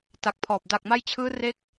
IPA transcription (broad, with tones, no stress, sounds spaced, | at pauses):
t a˨˩ k̚ pʰ ɔː˨˩ p̚ d a˨˩ k̚ m a˧ j t͡ɕʰ ɯː˦˥ r e˦˥ k̚